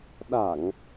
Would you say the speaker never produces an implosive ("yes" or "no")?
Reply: no